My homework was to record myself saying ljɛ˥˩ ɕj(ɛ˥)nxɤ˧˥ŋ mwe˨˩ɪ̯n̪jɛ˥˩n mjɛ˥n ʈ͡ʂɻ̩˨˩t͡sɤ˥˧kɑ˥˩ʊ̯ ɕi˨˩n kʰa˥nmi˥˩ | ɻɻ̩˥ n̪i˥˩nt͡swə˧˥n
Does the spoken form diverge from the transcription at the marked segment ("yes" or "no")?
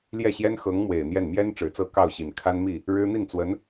no